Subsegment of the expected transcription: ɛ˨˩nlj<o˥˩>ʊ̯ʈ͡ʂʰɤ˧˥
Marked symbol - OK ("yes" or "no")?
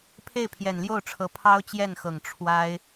yes